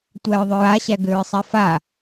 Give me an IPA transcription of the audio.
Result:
tʷ æ ɹ ðˤ ʏ ɹ a ɕ æ ɡ ʏ ɹ sˤ ɛ f a

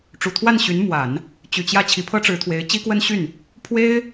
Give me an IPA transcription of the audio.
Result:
ʈ͡ʂ u˨˩ t̪ʰ w a˥˩ n ɕ y˧˥ n m w a˨˩˦ n | t͡ɕ y˨˩ t͡ɕ j ä˥˩ t͡ɕʰ i˧˥ pʰ ɤ˥ ʈ͡ʂ ɻ̩˧˥ t̪ʰ w e˧˥ ɪ̯ t͡ɕ i˥ k w ə˥ n ɕ y˥˩ n | pʰ w e˥ ɪ̯

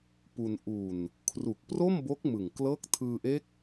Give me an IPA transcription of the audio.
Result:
p u˧ n ʔ u˨˩ n | kʰ r u˨˩ k̚ p r o˥˩ m b o˦˥ k̚ m ɯ˨˩ ŋ k l ɤː˦˥ k̚ tʰ ɯː˧ ʔ e˦˥ k̚

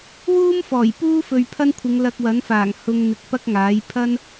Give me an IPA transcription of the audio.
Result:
w uː˥ m f ɔː˨˩ j p uː˥ f ɵ˨ ɥ pʰ ɐ˥ n kʷʰ ɪ˨˧ ŋ l ɐ˧ k̚ w ɐ˨˥ n f aː˨˩ ŋ h ʊ˧ ŋ n̪ ɪ˨ k̚ p ɐ˥ k̚ ŋ aː˨˥ j pʰ ɐ˥ n

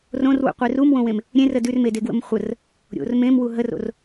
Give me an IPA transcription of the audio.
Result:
r õ r w ṵ qʷ e r u m w õ w ẽ m | ɾʲ ẽ r ə d ʉ r m e d e ɡ w ə̰ m χʷ ə r | ɾʲ o̰ r m ẽ m w u ɦ ə r o̰ r

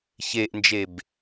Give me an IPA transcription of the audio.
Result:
ç e ʔ n d͡ʒ e b

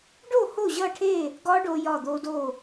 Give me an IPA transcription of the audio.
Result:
ɖ o˥˨ h o˥˨ ʑ ʌ˥˨ ʈʰ e˥˨ | ɡ ɒ˦˥ ɖ o˧ j ɒ˧˩ d̪ o˧ d o˧˩

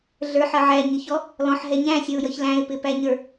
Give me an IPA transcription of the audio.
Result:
ɮ ə˞ ħ ʌ ʕ æ ɲ ɪ ç ɔ | l ɔ̃ ħ ɦ ɛ ɲ æ̃ sʲ ʌ ʊ̯ j ʌ ç l æ̃ ɪ̯ p ɪ p æ ɲ ə˞

